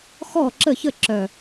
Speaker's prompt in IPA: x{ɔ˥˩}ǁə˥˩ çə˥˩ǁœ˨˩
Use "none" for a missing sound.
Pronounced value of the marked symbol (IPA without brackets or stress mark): ɔ˥˩